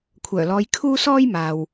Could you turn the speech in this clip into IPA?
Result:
kʷʰ œː˨˩ l ɔː˨˧ j kʰ uː˥ s ɔː˥ j m aː˨ w

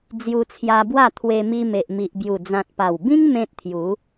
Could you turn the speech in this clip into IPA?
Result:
d͡z j u˧ t͡sʰ j a˧ b w a˥˧ t̪ʰ w e˧ m i˧ m e˨ ʔ m i˨ ʔ b j u˨˩ d͡z ã˨ t̚ p a˨˩ w b ĩ˦ ŋ m ẽ˦ t̚ t̪ʰ j u˨˦

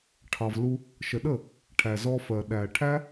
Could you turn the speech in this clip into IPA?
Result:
ʈʰ ɑ˨ v l u˧ | ʃ ə˨ ɗ ə˦˨ | ʈʰ æ˨ z ɔ˧ f ɜ˨ ɗ æ˨ ʈʰ æ˦

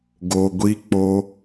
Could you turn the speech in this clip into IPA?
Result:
ɡ o˧ ɡʷ i˦ k͡p o˦

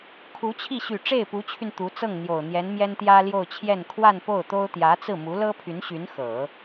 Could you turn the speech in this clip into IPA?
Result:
kʰ u˧˥ t͡ɕʰ i˥˩ ɕ y˨˩ ʈ͡ʂ e˥˩ ɪ̯ p u˧˥ t͡ɕʰ y˧ n t̪ u˧˥ t͡s ɤ˥˩ ŋ n̪ j o˨˩ ʊ̯ n̪ j ɛ˧˥ n m j ɛ˥ n t̪ j ä˥ l j o˥˧ ʊ̯ t͡ɕʰ j ɛ˥˧ n kʰ w a˥˧ n p o˥˩ ʊ̯ t̪ o˥ ʊ̯ t̪ j ä˧˥ t͡s ɹ̩˥˩ m u˧˥ l ɤ˥ pʰ y˧˥ n ɕ y˧˥ n x ɤ˨˩˦

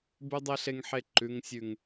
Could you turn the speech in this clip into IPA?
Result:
b ʉ˦ dˤ e˦ ɬ e˦ ŋ ħ e˦˨ ǃ ʉ˦ ŋ sʲ ʉ˦ ŋ

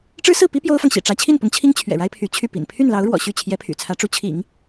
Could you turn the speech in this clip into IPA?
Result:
ʈ͡ʂ ɻ̩˥ s ɹ̩˥˩ p i˥ p j o˥ ʊ̯ f ɑ˨ ŋ ɕ ḭ˨˩ ʈ͡ʂ ä˧˥ t͡ɕʰ i˥˩ n p ʊ˧˥ ŋ t͡ɕʰ i˥ ŋ t͡ɕʰ ɥ ɛ̰˨˩ ɻ a˥ ɪ̯ pʰ y˧˥ t͡ɕʰ y˥˩ p ḭ˨˩ n pʰ y˥˩ n l ɑ˧˥ ʊ̯ ɻ w ɔ̰˨˩ ɕ y˥˩ t͡ɕʰ j ɛ˧˥ pʰ y̰˨˩ t͡sʰ ä˧˥ ʈ͡ʂ u˧˥ t͡ɕʰ ḭ˨˩˦ ŋ

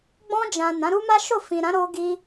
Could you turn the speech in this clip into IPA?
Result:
ɡ͡b ɔ̃˧ d͡ʒ ã˨ n ã˨˦ ɾ u˦ m a˦ ʃ o˦˨ f ĩ˨ ɾ ã˨˦ ɾ o˧ ɡ i˧

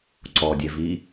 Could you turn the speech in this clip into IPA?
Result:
ǀ ɔ dʲ ɛ v i

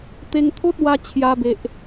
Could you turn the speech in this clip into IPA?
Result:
t̪ e˧ ŋ t̪ʰ o˦ t̚ w a˧ t͡ɕʰ j a˧ b e˨ ʔ

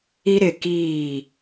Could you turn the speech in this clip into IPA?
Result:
i˦ ɾ ɪ˦˨ k iː˦˨

